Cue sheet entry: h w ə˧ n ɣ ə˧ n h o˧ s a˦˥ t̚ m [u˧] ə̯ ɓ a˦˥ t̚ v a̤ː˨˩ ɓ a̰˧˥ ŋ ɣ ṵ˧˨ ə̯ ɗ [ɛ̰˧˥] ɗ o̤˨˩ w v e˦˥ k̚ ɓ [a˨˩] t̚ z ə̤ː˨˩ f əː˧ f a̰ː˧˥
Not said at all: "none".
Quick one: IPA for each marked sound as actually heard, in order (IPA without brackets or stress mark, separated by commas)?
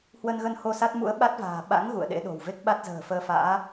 ṵ˧˥, ḛ˧˥, a˦˥